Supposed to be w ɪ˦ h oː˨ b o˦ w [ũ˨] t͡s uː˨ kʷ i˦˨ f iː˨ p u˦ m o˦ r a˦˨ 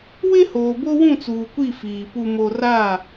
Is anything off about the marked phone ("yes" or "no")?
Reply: yes